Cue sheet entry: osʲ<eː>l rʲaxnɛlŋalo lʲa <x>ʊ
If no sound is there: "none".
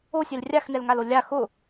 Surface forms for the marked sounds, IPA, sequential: e, x

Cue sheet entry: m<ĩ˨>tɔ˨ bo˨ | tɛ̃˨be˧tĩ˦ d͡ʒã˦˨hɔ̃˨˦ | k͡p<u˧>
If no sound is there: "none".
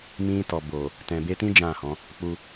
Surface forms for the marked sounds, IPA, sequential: ĩ˧, u˧

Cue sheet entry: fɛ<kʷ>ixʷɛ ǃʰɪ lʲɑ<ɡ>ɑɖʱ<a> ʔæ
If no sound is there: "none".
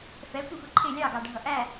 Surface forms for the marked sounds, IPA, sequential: kʷ, ɡ, ʌ

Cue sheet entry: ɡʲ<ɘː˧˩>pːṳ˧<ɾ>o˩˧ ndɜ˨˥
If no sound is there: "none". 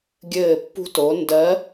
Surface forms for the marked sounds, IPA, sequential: ɘː˧˩, t

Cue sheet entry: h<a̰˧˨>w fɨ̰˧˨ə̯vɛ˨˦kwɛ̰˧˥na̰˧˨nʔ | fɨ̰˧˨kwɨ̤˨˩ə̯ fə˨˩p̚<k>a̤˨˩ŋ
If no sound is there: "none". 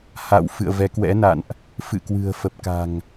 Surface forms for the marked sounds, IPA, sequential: a̰˧˨, k

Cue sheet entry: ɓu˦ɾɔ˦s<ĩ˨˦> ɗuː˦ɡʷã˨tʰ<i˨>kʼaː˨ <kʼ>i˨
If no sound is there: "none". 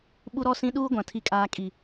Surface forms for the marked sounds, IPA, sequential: ĩ˦, i˨, kʼ

